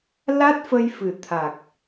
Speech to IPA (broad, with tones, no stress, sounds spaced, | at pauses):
l a˦˥ t̚ f ə˧ j f ɨ˨˩ t̪ʰ a˨˩ k̚